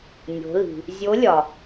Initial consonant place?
alveolar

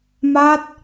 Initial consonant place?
labial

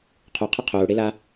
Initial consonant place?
uvular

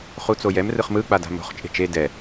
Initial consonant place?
uvular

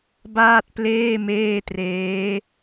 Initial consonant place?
labial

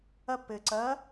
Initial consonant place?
labial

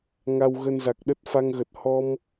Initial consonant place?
velar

